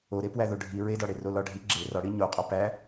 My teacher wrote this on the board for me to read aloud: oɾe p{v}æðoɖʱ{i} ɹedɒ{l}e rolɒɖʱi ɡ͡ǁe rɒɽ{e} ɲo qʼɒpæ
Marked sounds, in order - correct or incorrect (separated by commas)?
incorrect, correct, incorrect, incorrect